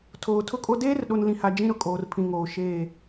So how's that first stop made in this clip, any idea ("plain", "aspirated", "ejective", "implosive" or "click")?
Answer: aspirated